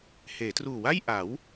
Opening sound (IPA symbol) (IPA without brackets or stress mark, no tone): h